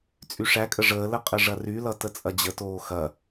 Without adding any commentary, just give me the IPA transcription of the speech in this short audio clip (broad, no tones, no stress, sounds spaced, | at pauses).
t͡sʼ y ʂ æ kʼ ə ʐ əː l ə qʼ ə ʐ ɐ r y l ʌ t ə t͡sʼ ɐ d͡ʑ ə t oː x ɐ